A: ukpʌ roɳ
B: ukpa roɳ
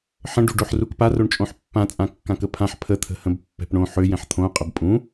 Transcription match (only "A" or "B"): B